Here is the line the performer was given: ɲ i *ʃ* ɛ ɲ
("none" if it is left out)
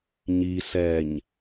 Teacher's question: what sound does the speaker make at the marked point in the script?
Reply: s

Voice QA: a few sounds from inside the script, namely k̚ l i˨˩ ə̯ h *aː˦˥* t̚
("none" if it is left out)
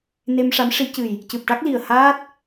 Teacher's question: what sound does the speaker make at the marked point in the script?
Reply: aː˦˥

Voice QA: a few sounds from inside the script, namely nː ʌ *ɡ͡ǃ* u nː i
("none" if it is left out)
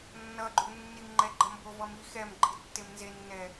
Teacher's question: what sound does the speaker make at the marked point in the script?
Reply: ɡ͡ǃ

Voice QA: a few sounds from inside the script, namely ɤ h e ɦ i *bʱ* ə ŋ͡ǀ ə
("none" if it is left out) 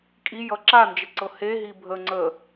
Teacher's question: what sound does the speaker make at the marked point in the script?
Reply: bʱ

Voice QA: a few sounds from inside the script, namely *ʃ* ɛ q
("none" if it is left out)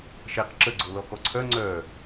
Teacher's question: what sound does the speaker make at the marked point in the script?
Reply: ʃ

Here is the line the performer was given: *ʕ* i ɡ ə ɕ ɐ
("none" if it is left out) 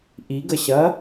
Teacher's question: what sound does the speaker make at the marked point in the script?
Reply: ʔ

